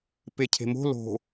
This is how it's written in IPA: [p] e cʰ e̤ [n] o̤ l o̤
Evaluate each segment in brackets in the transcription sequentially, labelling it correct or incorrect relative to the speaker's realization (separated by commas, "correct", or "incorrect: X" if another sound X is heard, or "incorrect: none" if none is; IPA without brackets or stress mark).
correct, incorrect: m